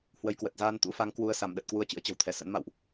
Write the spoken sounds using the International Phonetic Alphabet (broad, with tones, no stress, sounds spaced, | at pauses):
h w ə˧ j k w ə˨˩ t̚ z aː˧ n t̪ ṵ˧˥ f a˨˦ ŋ k w u˧ ə̯ s a˧˩ m ɗ ə˨˩ t̚ k w u˧ ə̯ t͡ɕ ɨ̰˧˥ ə̯ t͡ɕ ə̤˨˩ w t̪ʰ ɛ˧˩ s ə̰˧˥ n m a̰˧˨ w ʔ